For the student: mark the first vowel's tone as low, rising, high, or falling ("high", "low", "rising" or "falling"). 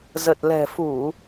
low